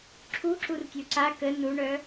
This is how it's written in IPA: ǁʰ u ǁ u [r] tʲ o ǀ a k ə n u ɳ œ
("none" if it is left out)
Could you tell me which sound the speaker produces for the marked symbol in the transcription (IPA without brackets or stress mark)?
r